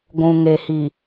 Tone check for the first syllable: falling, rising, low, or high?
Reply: low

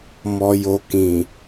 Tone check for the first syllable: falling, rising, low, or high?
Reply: low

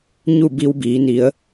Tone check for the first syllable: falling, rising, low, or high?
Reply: falling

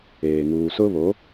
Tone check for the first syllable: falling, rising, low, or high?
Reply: low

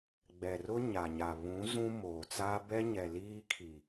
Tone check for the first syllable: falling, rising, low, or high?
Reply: low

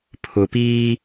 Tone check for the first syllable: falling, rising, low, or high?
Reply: low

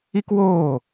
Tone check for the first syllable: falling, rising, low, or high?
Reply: high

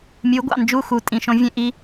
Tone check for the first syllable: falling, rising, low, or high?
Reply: rising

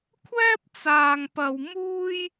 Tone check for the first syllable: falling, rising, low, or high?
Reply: high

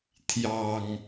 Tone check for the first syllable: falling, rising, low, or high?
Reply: low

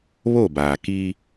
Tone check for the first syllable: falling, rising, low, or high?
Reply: falling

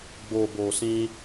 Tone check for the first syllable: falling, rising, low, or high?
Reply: low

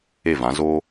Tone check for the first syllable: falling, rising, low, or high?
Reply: falling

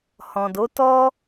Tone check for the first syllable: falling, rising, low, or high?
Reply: low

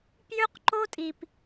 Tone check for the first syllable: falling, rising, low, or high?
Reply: high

